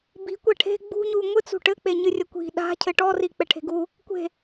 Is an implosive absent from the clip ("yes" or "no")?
no